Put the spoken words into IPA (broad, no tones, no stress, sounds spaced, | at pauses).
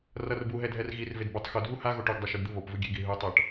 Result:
r ʌ r b u ɦ ɛ dʱ ɛ r ɣ i r v e d b ɯ tˤ x o dʱ u h a ɣ o ʈ o ɡ dˤ ɛ ʃ u d d̪ ɯ β o p v ɯ ɡʲ e ɡ i ɦ ɯ tˤ ʌ ʈ